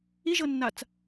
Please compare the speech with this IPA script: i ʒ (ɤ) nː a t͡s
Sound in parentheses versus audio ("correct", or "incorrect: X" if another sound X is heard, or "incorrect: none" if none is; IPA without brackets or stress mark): correct